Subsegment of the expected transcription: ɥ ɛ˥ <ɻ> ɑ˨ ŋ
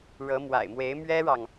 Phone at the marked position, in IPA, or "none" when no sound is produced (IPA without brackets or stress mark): ɻ